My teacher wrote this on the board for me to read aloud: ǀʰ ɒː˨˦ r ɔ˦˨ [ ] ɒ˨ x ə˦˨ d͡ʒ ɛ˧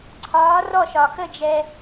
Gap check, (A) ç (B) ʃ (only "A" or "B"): B